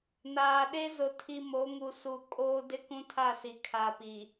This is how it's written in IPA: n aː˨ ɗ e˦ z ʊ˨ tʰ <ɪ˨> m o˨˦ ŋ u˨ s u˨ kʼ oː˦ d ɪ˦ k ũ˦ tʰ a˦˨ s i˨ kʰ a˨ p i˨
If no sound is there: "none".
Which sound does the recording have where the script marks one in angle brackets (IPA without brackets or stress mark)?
i˨